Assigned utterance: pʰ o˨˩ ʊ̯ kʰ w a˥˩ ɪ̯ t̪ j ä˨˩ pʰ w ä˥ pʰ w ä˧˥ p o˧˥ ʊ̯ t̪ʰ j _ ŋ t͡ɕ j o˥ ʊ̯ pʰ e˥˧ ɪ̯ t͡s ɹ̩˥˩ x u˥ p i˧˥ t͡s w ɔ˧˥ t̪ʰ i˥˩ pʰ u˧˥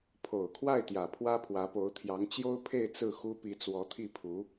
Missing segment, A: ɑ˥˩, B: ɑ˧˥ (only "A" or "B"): B